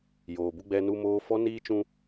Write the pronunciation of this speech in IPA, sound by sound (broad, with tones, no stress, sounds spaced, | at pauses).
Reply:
j oː˨ b u˦ ɡ͡b ɛ˦ n u˦ m oː˦ f ɔ˦ n iː˦ t͡ʃ ũ˦